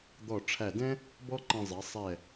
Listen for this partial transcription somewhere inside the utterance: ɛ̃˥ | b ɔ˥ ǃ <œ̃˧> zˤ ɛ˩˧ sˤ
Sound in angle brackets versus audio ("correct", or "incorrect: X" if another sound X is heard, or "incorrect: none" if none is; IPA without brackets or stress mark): incorrect: ɛ̃˧